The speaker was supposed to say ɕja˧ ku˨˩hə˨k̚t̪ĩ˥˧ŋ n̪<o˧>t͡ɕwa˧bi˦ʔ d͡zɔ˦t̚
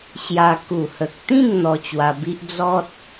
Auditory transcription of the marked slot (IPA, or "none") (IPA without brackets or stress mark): ɔ˧